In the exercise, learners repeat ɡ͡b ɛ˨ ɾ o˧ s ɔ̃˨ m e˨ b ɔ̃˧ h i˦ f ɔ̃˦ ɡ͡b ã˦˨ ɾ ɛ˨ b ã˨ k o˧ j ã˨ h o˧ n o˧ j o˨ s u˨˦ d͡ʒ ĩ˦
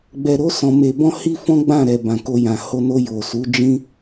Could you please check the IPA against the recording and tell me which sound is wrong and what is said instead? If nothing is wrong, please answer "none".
none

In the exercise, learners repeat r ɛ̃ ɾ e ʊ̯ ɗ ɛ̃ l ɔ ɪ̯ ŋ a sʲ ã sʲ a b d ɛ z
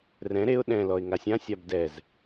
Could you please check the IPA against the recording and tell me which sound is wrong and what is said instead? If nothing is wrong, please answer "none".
none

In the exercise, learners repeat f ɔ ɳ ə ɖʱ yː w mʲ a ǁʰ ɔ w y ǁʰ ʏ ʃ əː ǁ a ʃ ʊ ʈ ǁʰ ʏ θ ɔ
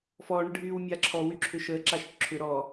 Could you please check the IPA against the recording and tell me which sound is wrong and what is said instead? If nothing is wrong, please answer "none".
θ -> ɾ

